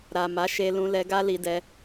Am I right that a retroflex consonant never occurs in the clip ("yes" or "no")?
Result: yes